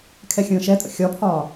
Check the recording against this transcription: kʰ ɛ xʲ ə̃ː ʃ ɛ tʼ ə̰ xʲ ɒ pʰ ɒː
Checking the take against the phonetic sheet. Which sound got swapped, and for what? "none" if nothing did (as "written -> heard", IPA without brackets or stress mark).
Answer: none